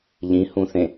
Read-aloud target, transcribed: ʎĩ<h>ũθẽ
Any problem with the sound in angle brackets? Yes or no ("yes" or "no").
no